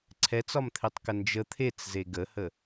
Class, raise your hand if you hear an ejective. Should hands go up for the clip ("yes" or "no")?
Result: no